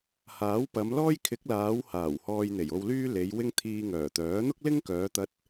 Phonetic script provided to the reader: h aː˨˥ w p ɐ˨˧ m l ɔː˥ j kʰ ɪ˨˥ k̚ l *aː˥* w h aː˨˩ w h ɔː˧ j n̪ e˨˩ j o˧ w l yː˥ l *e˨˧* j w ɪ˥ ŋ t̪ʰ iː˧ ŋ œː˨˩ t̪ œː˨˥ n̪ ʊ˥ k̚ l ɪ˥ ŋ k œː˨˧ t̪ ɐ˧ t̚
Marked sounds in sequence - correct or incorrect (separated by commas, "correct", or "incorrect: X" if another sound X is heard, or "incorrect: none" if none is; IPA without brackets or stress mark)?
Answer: incorrect: aː˨˧, correct